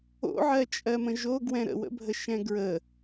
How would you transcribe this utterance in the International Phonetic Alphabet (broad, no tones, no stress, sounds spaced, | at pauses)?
o̰ ʕ ɜ t͡ʃʼ ɜ m ə̃ ʒ o ɡ w ɛ̃ ɾ ə̰ w ə̰ bʱ ə ʃ ɛ̃ ɡ ɹ ə